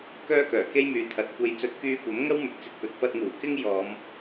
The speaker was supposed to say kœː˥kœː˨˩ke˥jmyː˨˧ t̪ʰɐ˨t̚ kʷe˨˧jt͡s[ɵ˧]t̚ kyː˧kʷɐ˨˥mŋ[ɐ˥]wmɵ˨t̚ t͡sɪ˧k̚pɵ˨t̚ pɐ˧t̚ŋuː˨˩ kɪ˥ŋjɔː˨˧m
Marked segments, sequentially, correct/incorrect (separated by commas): incorrect, correct